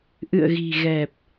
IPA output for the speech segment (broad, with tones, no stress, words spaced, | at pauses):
ʔɨ̰˧˨ə̯ɣi̤˨˩ɣɛ˨˩p̚